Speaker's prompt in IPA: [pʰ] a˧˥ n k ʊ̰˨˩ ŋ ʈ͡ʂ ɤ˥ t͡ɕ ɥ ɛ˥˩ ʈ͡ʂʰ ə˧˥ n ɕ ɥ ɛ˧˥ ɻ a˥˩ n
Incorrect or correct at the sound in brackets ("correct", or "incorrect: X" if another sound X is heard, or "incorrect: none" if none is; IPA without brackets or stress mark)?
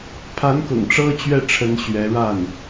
correct